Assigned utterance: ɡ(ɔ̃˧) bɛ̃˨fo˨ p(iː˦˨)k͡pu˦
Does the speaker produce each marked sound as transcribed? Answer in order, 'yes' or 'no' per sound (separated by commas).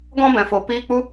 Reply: yes, no